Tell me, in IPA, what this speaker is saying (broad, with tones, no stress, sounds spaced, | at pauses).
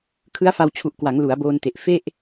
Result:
kʰ ɯ˦˥ a̯ f a˧ w t͡ɕʰ u˨˩ ʔ k w a˩˦ ŋ l u˩˦ a̯ b oː˧ n t e˨˩ ʔ f e˥˩ ʔ